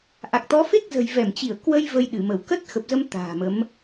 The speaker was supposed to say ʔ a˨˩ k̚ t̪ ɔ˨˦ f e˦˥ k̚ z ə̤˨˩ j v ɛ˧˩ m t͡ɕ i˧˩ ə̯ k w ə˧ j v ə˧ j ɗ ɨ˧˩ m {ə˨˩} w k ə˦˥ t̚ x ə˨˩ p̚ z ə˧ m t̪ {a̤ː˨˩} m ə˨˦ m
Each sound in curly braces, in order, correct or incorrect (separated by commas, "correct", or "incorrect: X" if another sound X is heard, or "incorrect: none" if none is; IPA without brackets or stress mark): incorrect: ə˧˩, correct